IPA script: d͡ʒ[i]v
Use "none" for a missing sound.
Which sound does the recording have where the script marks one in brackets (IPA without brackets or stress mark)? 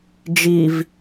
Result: i